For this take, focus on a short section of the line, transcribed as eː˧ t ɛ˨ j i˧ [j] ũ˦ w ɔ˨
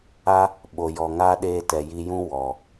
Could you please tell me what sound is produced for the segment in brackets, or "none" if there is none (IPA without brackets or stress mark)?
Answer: j